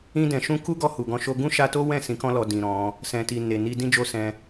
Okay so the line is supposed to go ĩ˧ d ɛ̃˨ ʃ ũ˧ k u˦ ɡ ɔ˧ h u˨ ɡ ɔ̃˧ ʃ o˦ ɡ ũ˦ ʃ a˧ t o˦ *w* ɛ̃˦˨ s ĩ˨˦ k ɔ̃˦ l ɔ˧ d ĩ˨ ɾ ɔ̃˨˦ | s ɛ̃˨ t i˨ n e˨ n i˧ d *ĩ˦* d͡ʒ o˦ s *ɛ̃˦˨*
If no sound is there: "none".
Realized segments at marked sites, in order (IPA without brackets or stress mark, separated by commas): w, ĩ˦, ɛ̃˧